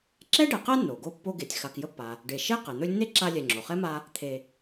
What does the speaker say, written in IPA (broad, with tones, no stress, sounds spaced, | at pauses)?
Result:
ǁ ɛ˥ ɖ ɛ˨ q ɛ˥ nː o˩ ɡ o˦ pː o˦ ɡ e˨ tʲ x a˨ k j ə˦ pː a˩ | ɖ e˨ ʃ e˥ q e˩ n̪ ɵ˦ lʲ nː e˥ ǁ a˦ lʲ ɛ˨ ŋ͡ǁ o˩ χ ɛ˥ m a˦ | t̪ʰ e˨